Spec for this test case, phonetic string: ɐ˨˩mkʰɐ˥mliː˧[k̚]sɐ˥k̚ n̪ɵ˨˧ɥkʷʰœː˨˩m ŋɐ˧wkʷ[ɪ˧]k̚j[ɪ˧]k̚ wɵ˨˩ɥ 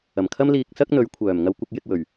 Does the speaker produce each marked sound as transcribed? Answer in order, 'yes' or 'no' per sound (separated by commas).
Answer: yes, yes, yes